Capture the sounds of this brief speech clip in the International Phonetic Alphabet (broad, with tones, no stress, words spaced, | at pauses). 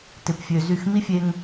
tɪ˧pfʲø˧zy˦˨x mi˦fʲe˧ŋ